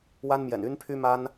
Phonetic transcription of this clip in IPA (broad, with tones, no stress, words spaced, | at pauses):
wa˦nmjɛ̰˨˩n y˦npʰy˦ma˦n